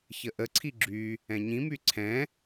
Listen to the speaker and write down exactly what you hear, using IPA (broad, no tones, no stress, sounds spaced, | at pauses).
ç ə ʔ ə ǀʰ i ɡ͡ǁ y | ɛ̃ ɲ ĩ m y ǀʰ ɛ̃